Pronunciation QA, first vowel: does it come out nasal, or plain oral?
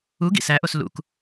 oral